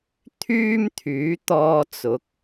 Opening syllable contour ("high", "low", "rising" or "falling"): high